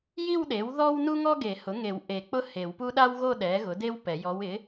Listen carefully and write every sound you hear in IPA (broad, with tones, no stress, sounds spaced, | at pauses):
j i˥˧ w ɗ e˩˥ w ð ɔ˥ w n u˥ ŋ ɔ˥ ɡ e˨˩˦ h ʊ˩˥ ŋ e˨˩˦ w ʔ e˨˩˦ k͡p ʊ˥ h e˨˩˦ w p u˥ ɗ a˥ w ɣ o˥˧ ɗ ɛ˩˥ ɣ ʊ˩˥ d e˥ w p ɛ˨˩˦ j ɔ˧˥ w ɪ˩˥